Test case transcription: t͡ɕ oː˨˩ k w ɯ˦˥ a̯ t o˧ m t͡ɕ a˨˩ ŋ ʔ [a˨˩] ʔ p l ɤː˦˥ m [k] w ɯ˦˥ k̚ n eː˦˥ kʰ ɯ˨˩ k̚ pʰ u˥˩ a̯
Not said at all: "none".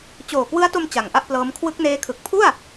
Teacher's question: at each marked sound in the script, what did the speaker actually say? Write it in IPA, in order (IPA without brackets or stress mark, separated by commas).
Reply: a˥˩, kʰ